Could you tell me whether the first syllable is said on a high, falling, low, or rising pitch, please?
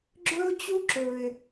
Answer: high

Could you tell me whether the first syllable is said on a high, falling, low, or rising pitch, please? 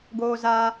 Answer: high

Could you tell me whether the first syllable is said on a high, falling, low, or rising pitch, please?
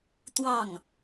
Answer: falling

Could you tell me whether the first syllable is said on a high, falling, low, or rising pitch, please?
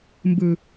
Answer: low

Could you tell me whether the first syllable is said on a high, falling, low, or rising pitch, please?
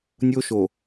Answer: high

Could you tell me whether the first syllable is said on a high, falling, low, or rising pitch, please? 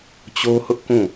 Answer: high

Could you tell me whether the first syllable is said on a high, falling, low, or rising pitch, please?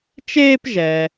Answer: high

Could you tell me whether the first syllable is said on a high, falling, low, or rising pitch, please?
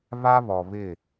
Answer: high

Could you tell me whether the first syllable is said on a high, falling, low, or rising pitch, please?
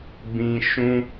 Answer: high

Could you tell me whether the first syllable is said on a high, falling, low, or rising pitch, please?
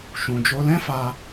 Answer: low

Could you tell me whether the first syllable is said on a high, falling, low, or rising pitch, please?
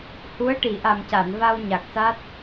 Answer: rising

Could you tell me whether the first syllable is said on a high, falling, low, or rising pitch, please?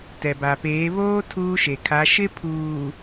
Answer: low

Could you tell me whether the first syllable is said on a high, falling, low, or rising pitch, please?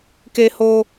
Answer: high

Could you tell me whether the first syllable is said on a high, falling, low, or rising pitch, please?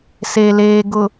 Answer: low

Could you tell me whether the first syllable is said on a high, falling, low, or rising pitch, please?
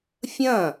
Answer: falling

